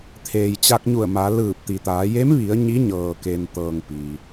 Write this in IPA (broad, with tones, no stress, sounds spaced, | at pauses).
t̪ʰ eː˩ j t͡ɕ a˧ k̚ ɲ u˧˩ ə̯ m a˩˧ l ɯː˧˩ p̚ t̪ i˩ t̪ aː˩˧ j e˧˥ m ʋ i˩˧ ə̯ ɲ i˧˥ ɲ ɤː˩ k e˩ n t̪ ɤː˩ ŋ p i˩